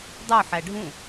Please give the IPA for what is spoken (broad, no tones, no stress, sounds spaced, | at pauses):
dˤ o ħ æ ɖʱ ũ